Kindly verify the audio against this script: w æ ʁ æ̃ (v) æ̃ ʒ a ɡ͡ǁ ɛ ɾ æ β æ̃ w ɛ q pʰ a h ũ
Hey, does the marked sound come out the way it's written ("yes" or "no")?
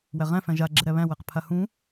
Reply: no